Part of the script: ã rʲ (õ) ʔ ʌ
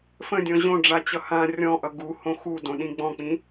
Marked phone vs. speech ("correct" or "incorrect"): incorrect